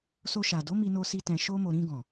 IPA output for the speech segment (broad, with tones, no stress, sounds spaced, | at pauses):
s o˧ ʃ a˨ d o˨˦ m i˧ n o˧ s i˧ t ɛ̃˧ ʃ o˦ m o˧ ɾ ĩ˧ ɡ ɔ̃˨